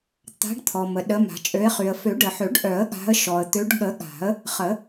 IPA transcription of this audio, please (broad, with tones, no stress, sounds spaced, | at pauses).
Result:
t̪ a̤˨˦ ɖ t̪ʰ ɔ˩ m ə˩ ɗ ə˨˦ m a̤˨˩˦ t͡ʃʼ ø˨˦ ɪ̯ χ y˩ ə̯ f ø˨˩˦ ɖ ə˩ ħ ø˨˩˦ ɖ ʔ œ˨˩˦ ə̯ ɠ a̤˨˦ ə̯ ʃ ɔ˩ ə̯ t̪ ø˨˦ ɖ ɠ ə˨˩˦ ɠ a̤˨˩˦ ə̯ | χ ə˨˩˦